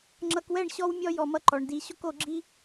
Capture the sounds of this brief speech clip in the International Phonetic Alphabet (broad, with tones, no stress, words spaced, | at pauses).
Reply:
ŋ͡ǁʌ˧kwɛ˦˨ɳɕɔ˦w mʲɔ˦ jɔ˧mʌ˦ ǃɔ˧ɳdi˦ ɕo˦ko˧ɡ͡ǁi˦